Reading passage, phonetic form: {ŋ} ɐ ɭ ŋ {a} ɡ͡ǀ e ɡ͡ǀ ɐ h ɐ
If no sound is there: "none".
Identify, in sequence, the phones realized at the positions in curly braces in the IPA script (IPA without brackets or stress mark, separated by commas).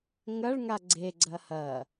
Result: ŋ, a